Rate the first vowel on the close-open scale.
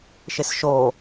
close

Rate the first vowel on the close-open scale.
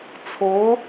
mid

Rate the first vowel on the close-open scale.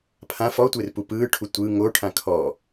open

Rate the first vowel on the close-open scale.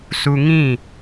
close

